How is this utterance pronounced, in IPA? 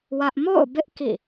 w ä˦ ʔ m o̰˦˨ ʊ̯ b ɪ˦ ʔ k ḭ˦˨

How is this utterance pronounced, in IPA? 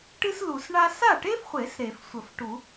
ʈ ɨ˥ s l u˨˩˦ s ɳ a˥ s a˥˩ ʈ e˥ f χʷ e˨˩˦ s ɾ e˨˩˦ f sʷ ə˨˩˦ f ʈ u˨˩˦

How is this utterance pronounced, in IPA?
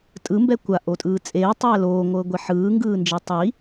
tʼ ɯ m b ɛ kʷ a ʔ o tʼ ɯː t͡sʼ eː tˤ ɛː l oː ŋʷ ɤː ɡʷ ɛ ħ ɯː ŋ ɡ ɯː n d͡ʒ e tˤ i

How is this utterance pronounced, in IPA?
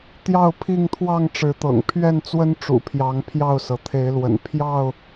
t̪ j ɑ˥˨ ʊ̯ pʰ i˥˨ ŋ t̪ʰ w ɑ˥˨ ŋ ʈ͡ʂ ɻ̩˨˦ t̪ ɤ̰˨˩ ŋ pʰ ɥ ɛ˥˨ n t͡s w ə˦ n ʈ͡ʂ ṵ˨˩ pʰ j ɑ˨˦ ŋ pʰ j ɑ˥˨ ʊ̯ s ɤ˩ t̪ʰ e˨˦ ɪ̯ l w ə̰˨˩ n pʰ j ɑ˥˨ ʊ̯

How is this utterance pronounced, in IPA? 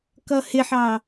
k ʌ h ɪ ħ ɑ

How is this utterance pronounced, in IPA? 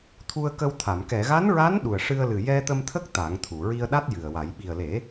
t̪ʰ u˧ ə̯ k ə˧ w t̪ʰ a˨˩˨ m k ɛ˨˩˨ ɣ a˧˥ n ɹ a˧˥ n ɗ u˨˩ ə̯ ʂ ɨ˧ ə̯ l ɨ˨˩ j ɛ˧ t̪ ə˧ m t̪ʰ ə˦˥ k̚ t̪ a˨˩˦ ŋ t̪ʰ u˨˩˨ ɹ i˧ ə̯ ɗ a˦˥ t̚ j ɨ˨˩ ə̯ w a˨˩˦ j ɓ i˨˩ ə̯ l e˨˩˦

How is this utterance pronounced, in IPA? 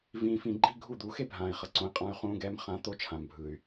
v ĩː˨ f ĩ˨ ɡ͡ǃ i˦ ɡʱ u˦˨ d̪ u˨˦ x e˦ bʱ ãː˨ i̯ χ ʌ˨ ǀ õ˨˦ i̯ qʼ ã˦ y̯ χ ũː˦ ɡ ɛː˦ m χ ã˨˦ t̪ o˦ t͡ʃʰ ã˨ m bʱ ɯ˨ y̯

